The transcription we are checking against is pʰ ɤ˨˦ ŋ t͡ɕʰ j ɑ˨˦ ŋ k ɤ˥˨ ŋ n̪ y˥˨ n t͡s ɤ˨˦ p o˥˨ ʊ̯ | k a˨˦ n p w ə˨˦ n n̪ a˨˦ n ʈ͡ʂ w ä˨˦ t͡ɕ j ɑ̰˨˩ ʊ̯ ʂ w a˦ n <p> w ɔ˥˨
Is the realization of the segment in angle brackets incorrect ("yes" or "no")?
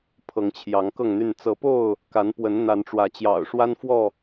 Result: yes